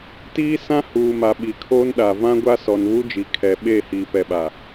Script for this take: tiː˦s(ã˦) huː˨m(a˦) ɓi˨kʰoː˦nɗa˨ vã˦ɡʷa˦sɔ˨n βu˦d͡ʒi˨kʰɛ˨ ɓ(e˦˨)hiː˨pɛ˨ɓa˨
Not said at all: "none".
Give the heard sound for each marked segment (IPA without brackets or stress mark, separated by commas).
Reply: ã˦, a˨, e˦˨